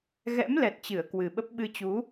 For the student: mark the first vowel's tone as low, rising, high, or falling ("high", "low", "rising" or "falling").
rising